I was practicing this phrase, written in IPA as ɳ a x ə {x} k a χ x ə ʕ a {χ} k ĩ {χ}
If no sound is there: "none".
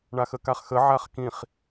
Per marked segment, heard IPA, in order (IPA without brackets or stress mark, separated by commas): none, χ, χ